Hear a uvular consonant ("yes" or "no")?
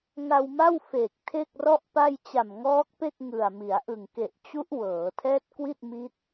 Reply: no